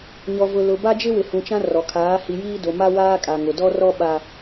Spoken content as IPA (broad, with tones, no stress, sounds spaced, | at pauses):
ɲ ɔ˨ v ʊ˨ l ʊ˨ b a˦ d͡ʒ ɪ˦ w ɪ˨ h ũ˨ t͡ʃ ã˦ r ɔ˨ kʰ aː˨˦ h i˨ j iː˦ d o˨ m a˦ w aː˦ kʼ a˨ ŋ ʊ˨ d ɔ˦ r ɔ˦ ɓ a˦